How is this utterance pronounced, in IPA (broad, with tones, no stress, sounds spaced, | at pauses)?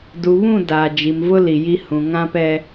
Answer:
d u˨ β ũ˦˨ d aː˨ d͡ʒ i˨ m v ʊ˦ l i˨ j i˦ h ũ˨ ŋ ã˦ p ɛ˦